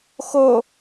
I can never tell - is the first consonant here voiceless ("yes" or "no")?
yes